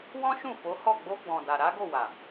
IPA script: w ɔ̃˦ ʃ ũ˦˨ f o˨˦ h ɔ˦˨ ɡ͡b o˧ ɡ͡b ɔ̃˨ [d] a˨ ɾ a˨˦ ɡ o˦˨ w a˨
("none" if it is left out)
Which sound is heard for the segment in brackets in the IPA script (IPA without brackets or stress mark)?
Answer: d